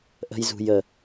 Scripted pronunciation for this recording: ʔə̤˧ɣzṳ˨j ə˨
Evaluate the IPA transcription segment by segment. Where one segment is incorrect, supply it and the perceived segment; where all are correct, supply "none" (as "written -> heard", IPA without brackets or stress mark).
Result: ɣ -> j